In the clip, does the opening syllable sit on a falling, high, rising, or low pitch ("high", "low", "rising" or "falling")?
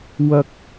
low